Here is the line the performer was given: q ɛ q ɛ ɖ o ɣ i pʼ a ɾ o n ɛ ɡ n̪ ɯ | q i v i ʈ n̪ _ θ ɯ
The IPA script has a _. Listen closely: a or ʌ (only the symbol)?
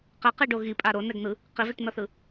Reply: ʌ